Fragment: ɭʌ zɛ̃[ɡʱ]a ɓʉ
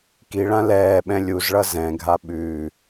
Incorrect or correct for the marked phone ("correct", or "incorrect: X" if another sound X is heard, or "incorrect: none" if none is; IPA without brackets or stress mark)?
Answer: correct